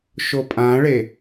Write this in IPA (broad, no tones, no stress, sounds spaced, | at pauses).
ʃ o pʼ ã ɭ e